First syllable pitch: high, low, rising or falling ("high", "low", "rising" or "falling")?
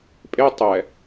high